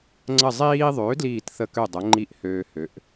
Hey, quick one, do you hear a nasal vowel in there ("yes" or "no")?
no